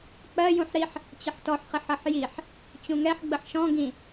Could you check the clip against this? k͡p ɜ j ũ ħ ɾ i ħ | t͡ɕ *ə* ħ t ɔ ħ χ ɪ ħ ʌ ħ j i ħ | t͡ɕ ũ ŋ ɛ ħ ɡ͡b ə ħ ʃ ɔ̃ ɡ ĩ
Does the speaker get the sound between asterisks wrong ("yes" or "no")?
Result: no